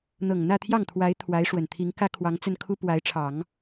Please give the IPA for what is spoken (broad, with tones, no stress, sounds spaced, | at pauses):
n̪ ɤ˨˩ ŋ n̪ ä˥˧ t̪ʰ j ɑ˥˩ ŋ t̪ʰ w a˧˥ ɪ̯ t̪ʰ w a˧˥ ɪ̯ ʂ w ə˨˩ n t̪ʰ i˧˥ ŋ k ä˥ kʰ w ɑ˧˥ ŋ t͡s ə˥˩ n kʰ u˥ p w a˧˥ ɪ̯ ʈ͡ʂʰ ɑ˨˩˦ ŋ